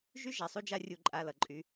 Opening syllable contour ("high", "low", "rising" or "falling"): high